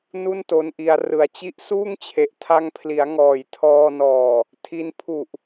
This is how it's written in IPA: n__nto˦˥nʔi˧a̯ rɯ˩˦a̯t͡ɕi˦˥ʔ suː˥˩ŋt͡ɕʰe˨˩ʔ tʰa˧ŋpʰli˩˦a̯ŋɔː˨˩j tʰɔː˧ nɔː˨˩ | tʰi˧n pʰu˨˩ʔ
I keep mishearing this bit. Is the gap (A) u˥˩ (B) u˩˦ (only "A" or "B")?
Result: A